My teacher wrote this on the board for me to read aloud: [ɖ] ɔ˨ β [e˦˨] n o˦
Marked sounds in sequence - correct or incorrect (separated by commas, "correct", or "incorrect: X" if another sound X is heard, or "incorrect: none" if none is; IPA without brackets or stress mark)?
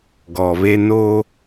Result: incorrect: ɡ, incorrect: e˦